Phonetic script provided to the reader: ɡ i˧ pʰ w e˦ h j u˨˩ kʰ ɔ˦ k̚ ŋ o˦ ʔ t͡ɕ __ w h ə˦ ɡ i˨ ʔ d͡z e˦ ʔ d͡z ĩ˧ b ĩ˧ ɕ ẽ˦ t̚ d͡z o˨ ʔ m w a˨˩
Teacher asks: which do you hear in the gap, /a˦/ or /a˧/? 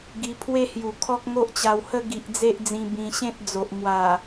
a˧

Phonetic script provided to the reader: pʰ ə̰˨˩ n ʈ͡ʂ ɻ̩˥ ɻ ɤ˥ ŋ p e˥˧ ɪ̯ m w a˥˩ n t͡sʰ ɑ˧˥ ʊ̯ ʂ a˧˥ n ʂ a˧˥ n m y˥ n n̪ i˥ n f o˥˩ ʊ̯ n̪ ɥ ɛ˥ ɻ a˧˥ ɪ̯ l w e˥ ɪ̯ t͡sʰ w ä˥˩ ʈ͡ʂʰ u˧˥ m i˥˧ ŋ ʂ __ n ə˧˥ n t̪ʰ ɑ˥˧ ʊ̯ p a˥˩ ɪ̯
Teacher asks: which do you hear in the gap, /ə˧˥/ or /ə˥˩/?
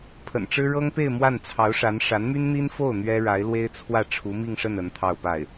ə˥˩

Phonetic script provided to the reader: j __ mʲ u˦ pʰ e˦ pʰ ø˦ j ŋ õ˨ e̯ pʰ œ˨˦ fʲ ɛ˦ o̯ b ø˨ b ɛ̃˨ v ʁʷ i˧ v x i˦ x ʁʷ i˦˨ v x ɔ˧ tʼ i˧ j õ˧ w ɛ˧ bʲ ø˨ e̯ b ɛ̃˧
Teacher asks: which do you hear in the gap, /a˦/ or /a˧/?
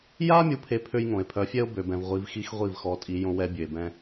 a˦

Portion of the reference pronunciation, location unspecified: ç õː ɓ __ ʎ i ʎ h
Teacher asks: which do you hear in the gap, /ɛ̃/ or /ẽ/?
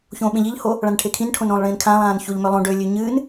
ẽ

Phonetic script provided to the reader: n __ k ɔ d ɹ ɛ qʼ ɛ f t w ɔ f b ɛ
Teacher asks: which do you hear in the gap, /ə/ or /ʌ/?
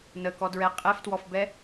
ə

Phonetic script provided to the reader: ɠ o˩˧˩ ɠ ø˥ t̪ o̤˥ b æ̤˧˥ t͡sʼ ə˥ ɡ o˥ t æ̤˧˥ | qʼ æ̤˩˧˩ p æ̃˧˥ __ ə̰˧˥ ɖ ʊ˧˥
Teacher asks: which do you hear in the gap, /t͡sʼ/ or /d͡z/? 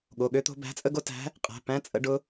t͡sʼ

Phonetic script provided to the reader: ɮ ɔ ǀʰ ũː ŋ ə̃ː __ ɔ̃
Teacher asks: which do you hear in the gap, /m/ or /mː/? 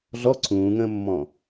mː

